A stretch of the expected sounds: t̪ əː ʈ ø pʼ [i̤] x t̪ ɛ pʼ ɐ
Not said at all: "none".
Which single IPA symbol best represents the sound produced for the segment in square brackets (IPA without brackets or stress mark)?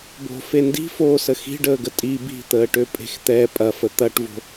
e̤